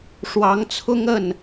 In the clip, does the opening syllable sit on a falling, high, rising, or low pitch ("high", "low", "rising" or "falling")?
rising